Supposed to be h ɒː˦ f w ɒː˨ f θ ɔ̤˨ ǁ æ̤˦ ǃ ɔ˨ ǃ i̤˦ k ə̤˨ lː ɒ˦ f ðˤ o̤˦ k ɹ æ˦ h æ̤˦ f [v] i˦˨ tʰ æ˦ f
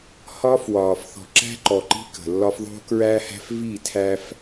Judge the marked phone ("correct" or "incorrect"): correct